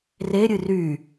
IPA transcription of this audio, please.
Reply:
r e ɾʲ ɨ r y

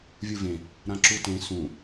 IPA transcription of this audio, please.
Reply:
vʲ u v ẽ | ɾ ã ǁ u t ẽ s ũ

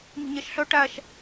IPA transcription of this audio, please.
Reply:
m i̤ ɲ ɛ ʃ ɬ œ ʈ æ ʃ

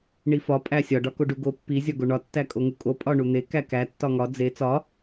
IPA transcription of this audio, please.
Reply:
ɳ i f ɒ pʼ æ sʲ ɒ ɖ ɒ k o ɖ u ɡ o pː i zʲ ɒ ɡ o ɳ ɒ tː æ kʼ o ŋ u kʼ o pʼ ɒ ɳ u n̪ e k æ k æ tː ɒ ŋ ɒ d͡z e t͡s ɒ

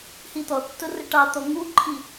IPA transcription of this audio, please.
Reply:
h i t̪ ɔ tː ʊ r ə ʈ ɑ t̪ ɔ ŋ u ǃʰ i

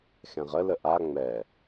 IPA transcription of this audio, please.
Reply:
x ɛ̃ ʁ ə l ə ʔ a ŋ͡m ɛ

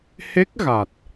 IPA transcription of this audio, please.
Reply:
h e˦˥ k̚ ɣ a˨˩ t̚

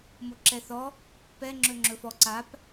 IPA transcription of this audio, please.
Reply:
m o ǁ ɛ θ ɔ | p ɛ ŋ͡ǁ ɵ ŋ͡ǁ ɵ f ɔ ǀ a p

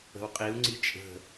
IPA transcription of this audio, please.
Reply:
ə̤ w qʼ i u̯ ŋ͡ǀ i t͡ʃʼ ə̤

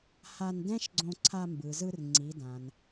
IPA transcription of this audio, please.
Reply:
h a˧ n d ɛ̃˥ ʃ ɡ͡ǀ õ˧ ǀʰ a˧ m b ɯ˩ z ɯ˧ r ŋ͡ǀ i˩˧ d ã˩ n

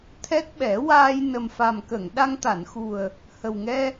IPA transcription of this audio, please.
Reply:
t̪ʰ ɛ˦˥ t̚ ɓ ɛ˨˩˦ w aː˧ j n ə˨˩ m f a˨˩ m k ə˨˩˨ ŋ ɗ a˧ ŋ t̪ a˨˩˨ n x u˨˩ ə̯ | h ə˨˩ w ŋ ɛ˧

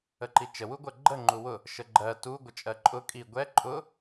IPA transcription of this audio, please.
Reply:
ə ǃ i t͡ʃ ə w u ɡʷ ɜ ɡ͡ǃ ə ŋ͡ǃ u w ʊ | ʃ ə ɡ͡ǃ ɜ t u ɡʷ ə t͡ʃʼ ɜ ǃʼ ʊ kʼ i ɡʷ ɛ ǃʼ ʊ

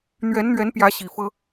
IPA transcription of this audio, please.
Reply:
n̪ ɥ ɛ˨˦ n n̪ ɥ ɛ˨˦ n p j ä˨˦ ɕ i˨˩ f ɤ˦

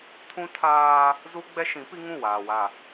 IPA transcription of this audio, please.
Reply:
tʰ ũ˦ tʰ aː˦ | z u˦ ɡ͡b ɛ˦ ʃ ĩ˨˦ p i˦ ŋ ũ˦˨ w aː˨ w a˨

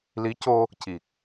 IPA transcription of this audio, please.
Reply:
l i˧˥ c o˧ | c i˨˩ k̚

